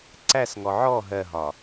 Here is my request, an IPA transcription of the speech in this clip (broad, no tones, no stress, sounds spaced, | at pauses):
ǀ æ s ŋ ɔ ʕ ɔ ɦ ɜ ɦ ɒ